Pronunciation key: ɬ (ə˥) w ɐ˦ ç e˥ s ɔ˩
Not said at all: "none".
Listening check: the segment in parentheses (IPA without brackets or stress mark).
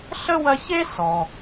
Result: ə˥